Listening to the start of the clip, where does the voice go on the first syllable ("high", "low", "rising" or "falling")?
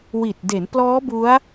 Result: low